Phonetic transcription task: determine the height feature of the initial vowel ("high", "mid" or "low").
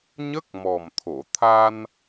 mid